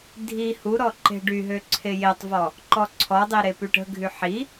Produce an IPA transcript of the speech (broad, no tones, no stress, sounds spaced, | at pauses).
dʱ i h u ɾ ɔ ǃ e̤ ɖ y ɦ ø ǀʰ e j e tˤ v ɔ | ǃ ɔ ǀʰ ɔ dˤ i ɾ e p y ʈ ə̤ ɡʱ y ħ i